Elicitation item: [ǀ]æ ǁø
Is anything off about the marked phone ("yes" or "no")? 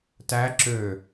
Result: yes